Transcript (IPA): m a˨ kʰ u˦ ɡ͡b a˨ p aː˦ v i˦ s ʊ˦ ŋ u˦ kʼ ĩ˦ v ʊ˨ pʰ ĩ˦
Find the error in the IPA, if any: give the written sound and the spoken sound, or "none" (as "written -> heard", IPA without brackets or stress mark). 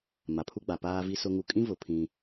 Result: kʰ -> pʰ